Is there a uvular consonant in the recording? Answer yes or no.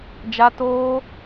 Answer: no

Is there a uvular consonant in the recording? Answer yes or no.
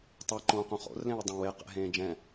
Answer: yes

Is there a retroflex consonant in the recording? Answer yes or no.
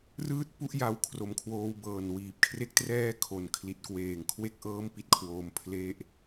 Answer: no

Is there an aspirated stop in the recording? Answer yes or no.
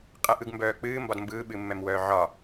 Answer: no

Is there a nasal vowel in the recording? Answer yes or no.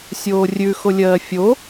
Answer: no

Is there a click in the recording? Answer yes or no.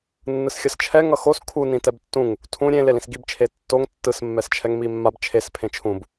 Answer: no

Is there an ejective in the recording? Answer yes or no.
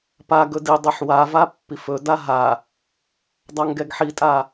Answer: yes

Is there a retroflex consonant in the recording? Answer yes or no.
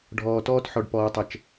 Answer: yes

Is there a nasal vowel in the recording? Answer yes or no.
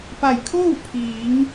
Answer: no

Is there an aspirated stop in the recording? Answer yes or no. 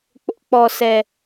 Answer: no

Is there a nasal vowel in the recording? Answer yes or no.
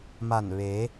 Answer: no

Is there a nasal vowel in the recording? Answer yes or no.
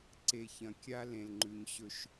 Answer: yes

